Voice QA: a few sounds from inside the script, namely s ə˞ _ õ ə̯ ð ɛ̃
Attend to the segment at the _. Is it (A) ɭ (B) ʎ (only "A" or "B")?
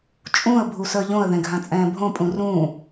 B